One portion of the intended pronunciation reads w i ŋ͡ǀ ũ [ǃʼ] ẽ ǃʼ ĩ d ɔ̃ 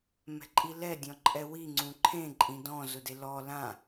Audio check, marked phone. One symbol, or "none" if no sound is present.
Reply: ǃʰ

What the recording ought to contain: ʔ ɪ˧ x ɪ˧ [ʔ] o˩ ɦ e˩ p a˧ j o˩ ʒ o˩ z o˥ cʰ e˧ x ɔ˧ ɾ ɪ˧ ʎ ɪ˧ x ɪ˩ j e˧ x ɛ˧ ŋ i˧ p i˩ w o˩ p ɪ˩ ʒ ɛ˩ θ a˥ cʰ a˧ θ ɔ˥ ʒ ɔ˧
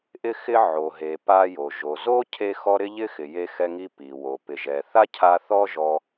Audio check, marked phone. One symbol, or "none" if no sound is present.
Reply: ʕ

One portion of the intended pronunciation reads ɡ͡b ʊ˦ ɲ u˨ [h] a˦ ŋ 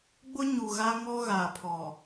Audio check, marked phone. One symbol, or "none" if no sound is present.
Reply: ɣ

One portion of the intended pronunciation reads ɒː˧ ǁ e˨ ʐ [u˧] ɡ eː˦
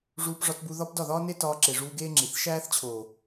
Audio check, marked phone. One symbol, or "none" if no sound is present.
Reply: uː˧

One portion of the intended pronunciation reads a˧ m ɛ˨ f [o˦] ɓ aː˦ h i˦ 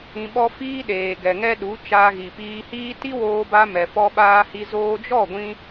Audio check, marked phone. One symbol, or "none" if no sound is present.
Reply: ɔ˦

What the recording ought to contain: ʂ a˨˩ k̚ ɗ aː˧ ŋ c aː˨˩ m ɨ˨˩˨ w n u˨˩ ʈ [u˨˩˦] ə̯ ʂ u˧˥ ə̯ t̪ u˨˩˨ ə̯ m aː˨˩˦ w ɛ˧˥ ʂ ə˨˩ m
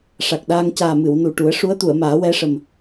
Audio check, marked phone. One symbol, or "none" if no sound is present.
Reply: u˨˩˦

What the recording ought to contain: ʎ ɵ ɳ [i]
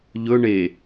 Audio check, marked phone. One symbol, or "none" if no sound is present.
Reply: e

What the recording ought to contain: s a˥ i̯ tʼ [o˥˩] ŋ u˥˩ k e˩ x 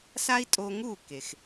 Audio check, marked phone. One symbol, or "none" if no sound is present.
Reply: o˧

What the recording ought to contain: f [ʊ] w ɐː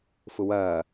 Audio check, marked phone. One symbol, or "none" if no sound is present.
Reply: ʊ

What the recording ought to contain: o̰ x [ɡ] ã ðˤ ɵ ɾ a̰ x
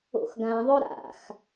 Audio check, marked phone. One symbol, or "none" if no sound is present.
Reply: ɡ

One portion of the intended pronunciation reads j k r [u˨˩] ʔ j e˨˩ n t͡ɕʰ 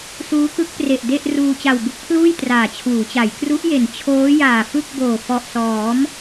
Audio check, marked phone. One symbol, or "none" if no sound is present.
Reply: u˦˥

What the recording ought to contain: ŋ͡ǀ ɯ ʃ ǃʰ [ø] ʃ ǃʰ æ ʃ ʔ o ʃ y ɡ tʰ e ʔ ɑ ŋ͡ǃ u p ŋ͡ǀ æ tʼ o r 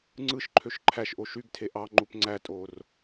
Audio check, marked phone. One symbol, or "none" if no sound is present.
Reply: ø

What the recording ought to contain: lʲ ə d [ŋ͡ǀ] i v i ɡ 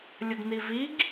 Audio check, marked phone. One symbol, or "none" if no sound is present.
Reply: n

